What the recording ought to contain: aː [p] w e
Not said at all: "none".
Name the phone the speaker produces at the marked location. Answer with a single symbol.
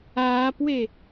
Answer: p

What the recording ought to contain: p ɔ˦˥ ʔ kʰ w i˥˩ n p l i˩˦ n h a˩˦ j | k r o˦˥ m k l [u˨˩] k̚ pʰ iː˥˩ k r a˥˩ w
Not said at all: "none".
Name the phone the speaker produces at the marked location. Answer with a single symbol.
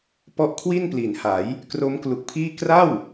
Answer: u˨˩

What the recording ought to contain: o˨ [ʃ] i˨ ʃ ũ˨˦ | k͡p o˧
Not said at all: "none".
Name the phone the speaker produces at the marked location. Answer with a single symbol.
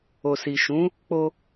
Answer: s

